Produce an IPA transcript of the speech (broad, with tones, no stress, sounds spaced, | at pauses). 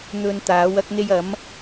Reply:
n̪ ɵ˨ n t̪ aː˨˥ w ɐ˥ k̚ n̪ e˥ j ɐ˨˥ m